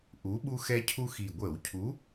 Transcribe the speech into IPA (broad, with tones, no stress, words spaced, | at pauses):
ʔu˨˥ɓu˦xɛ˦cʰu˦ xi˨˩ɡʷə˧˩˧wcʰu˨˥